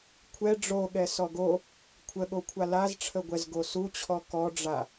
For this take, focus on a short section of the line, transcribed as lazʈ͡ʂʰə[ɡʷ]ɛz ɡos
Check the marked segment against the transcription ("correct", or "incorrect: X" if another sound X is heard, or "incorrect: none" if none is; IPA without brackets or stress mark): correct